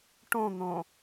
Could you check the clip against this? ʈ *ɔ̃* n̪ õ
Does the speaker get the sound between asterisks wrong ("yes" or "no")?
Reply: yes